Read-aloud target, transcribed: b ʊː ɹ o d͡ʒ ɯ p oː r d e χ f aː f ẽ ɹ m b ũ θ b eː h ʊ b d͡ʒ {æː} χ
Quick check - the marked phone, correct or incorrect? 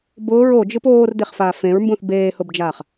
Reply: incorrect